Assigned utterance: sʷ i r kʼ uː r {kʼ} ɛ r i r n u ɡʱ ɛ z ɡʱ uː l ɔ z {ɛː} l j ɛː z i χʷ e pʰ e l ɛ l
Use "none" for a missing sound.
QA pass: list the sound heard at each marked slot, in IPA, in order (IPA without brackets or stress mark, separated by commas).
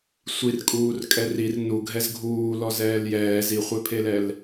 kʼ, ɛː